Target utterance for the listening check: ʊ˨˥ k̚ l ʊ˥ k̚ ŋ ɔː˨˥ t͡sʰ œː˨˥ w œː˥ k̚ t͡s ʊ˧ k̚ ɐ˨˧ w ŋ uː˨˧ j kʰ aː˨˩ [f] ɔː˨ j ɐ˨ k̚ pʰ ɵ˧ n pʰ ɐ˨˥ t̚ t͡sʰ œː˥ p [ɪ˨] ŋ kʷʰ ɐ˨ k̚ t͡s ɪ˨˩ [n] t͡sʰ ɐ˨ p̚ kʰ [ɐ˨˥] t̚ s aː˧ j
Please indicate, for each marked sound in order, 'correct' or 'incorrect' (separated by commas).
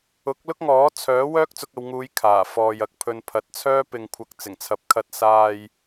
correct, correct, incorrect, incorrect